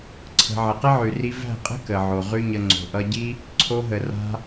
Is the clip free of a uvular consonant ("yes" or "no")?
no